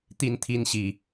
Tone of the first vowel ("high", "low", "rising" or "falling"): high